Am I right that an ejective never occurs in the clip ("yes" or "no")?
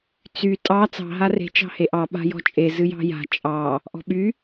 no